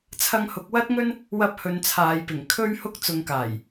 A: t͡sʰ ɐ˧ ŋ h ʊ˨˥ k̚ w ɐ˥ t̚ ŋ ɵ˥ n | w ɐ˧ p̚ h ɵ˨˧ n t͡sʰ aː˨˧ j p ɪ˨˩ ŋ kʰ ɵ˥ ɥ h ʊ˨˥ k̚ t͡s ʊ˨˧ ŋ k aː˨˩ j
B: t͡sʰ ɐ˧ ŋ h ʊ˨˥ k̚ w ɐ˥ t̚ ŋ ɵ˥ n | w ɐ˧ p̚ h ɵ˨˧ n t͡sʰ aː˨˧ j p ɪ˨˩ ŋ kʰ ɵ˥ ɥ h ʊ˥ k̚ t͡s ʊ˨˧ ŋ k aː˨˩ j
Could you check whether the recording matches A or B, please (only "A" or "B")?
B